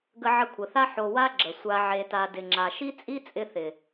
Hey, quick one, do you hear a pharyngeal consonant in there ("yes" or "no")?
yes